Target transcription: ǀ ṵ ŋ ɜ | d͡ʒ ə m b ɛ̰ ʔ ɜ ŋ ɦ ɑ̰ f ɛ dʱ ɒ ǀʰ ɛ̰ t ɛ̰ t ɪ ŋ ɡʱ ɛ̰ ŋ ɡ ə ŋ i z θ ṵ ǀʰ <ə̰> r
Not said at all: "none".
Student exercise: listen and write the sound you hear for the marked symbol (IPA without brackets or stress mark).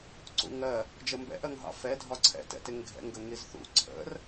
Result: ə̰